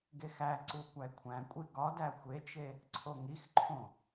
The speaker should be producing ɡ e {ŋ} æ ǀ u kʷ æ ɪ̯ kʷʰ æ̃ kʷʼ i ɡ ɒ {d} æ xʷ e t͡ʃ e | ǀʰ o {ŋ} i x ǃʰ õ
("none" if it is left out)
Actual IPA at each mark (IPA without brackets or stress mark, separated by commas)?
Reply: x, d, ŋ